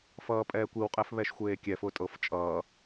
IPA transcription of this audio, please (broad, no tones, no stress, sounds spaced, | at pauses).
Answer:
f ʌː pʼ ɛː kʷ i w qʼ ɛ f β ɛ ʃ xʷ eː kʲ ɛ f ʊ tʼ ɤ f t͡ʃʼ ʌː